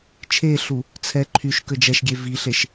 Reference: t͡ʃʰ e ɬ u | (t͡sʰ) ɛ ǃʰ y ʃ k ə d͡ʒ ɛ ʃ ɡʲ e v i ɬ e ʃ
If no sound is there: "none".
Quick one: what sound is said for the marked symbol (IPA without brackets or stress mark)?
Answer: t͡sʰ